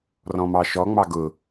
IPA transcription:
rɔ̃mɑʃɔ ŋ͡mɑɡʊ

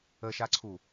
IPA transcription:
əʃaǀʰu

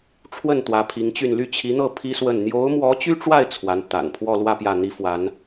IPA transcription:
ʈ͡ʂʰwə˥˩n t̪wä˧˥pʰi˧˥ŋt͡ɕy˥˧n ly˥˩t͡ɕʰi˧˥n̪ɤ˥˩ pʰi˥swə˥˩n n̪jo˧˥ʊ̯mwɔ˧˥t͡ɕy˥ʈ͡ʂwa˥˩ɪ̯ t͡sʰwa˧˥nt̪a̰˨˩n pʰwɔ˥˧lwä˥˧ pjä˥˩n̪i˥fwa˧˥n

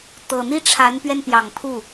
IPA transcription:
t̪ɤ˨˩n̪i˥˩ ʈ͡ʂʰa˧˥npɥɛ˧npjɑ˨˩ŋ pʰu˥˩

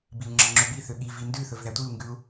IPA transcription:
biu̯ŋ͡ǁɑŋ͡ǁɵbi θøɠi vindʉ θɵvðætʷiu̯ ŋɡʉu̯

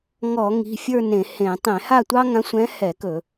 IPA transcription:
ŋɔ˧˩˧ŋi̤˩˧˩fʲə˞˥˧ nẽ˧˩˧hẽ˧˩˧ tˤẽ˧˩˧ha˥˧tʷɑ˥ ŋã˧˥sʷɛ̃˧˥hɛ˧˩˧kɵ˧˩˧

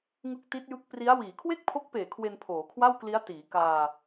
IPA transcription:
ŋɯ˦˥k̚ti˦˥t̚jɯ˦˥k̚ pri˦˥a̯ wiː˩˦kʰwe˥˩k̚pʰo˦˥k̚peː˨˩ kʰwe˧npʰoː˩˦kʰwa˥˩wkli˦˥a̯ tiː˩˦kaː˧

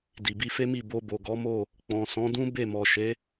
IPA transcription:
di˨bi˧fe˦ mi˦˨ bo˧bo˨ɡɔ˨˦mo˦˨ | k͡pɔ̃˨sɔ̃˨˦dũ˦ be˦˨mɔ˨ʃe˨˦

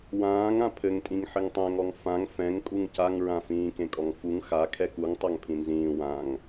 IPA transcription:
wãːŋ ãpʰɘŋtʼĩŋ ħɘŋtˤɛ̃ŋɔŋ fãŋ fɛ̃ŋ kʼuŋcaŋɹãfĩː kẽkʼɔŋfuŋ xa kʰɛkuŋ tˤaŋpʰĩnzĩː wãŋ

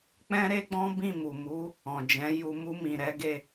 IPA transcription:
k͡pɛ̃˦ɾe˦ɡ͡bɔ̃˦ bĩ˦˨mu˨mu˨˦ | ɔ̃˨d͡ʒɛ̃˨˦ju˧ mu˧ mĩ˨ɾɛ˨˦ɡe˧

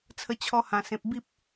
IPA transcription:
t͡sʰə˧t͡ɕʰɔ˧hã˨˩ sẽ˨p̚ bi˦p̚

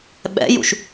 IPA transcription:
ɓɛ̰jṵʃ

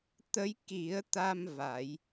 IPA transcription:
t̪ə˧˥jki˨˩˦ə̯t̪a˧m va˨˩˦j

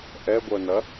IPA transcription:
ʔɛɡʷœnɐ

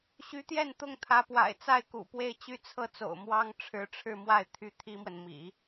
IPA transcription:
ɕy˧˥t̪jɛ˥˧n t̪ʊ˥˩ŋt̪ʰä˧˥pwa̰˨˩ɪ̯ t͡sa˥˩ɪ̯kṵ˨˩pwe˥˧ɪ̯ t͡ɕy˥˧t͡sʰɤ˥˩t͡so̰˨˩ʊ̯mwɑ˥ŋ ʈ͡ʂʰɻ̩˧˥ʈ͡ʂʰɻ̩˥˧mwa˥˩ɪ̯ t̪ʰy˥t̪ʰi˥mwə˨n mḭ˨˩˦

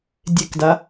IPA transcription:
dʲekda

